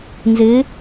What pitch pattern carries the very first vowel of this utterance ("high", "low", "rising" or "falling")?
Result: rising